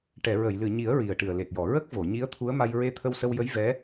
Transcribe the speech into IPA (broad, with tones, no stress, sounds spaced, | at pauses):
ʈ ɛ˨˩˨ ɹ ə˨˩˨ j l ɨ˨˩˨ ɲ i˨˩˦ ə̯ ɹ i˨˩ ə̯ ʈ ɨ˨˩ ə̯ l e˨˩ t̚ j ɔ˨˩˨ ɹ ə˦˥ k̚ v o˨˩˨ ɲ i˧˥ ə̯ t̪ʰ u˧˥ ə̯ m a˧ j ɹ e˧ t̪ʰ ə˧ w s ə˧ w j ə˧˥ j v ɛ˧˥